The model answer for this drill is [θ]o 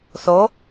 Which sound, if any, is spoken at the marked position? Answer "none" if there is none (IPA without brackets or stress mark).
θ